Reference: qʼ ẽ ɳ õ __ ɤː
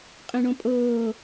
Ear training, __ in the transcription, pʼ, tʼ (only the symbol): pʼ